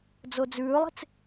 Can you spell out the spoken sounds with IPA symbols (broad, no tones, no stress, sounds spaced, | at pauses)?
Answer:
d͡z o d͡z ʉː lˠ e̤ t͡s